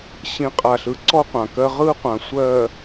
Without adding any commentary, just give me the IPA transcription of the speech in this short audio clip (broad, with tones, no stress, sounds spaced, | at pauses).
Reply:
ɕ ĩ˨˦ qʼ a˨ ɬ ɯ˨˦ ǀ ɔ˦ qʷ ã˨ k ɜ˦ ʁ ɯ˦ qʷ ã˨ sʷ ɜ˨